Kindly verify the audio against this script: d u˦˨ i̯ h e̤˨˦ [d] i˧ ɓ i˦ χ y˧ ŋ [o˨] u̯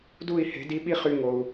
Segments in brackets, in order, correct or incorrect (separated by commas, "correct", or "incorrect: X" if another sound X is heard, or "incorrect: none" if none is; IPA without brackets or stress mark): correct, correct